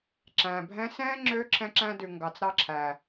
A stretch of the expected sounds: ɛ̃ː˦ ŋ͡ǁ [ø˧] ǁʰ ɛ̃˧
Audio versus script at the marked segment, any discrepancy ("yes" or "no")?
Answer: no